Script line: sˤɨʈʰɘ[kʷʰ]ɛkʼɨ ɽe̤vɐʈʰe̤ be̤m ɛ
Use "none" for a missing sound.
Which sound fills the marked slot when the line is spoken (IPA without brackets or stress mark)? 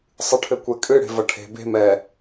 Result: kʷ